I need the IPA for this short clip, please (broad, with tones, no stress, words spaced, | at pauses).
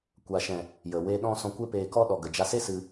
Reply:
kʷa˨ʃɛ̃˨ | jə˨we˧ ɗɔ̃˧ sɔ̃˧kʷe˦peː˧kɔ˦ ɗɔ˨ɡə˨d͡ʒa˧se˦ sɨ˧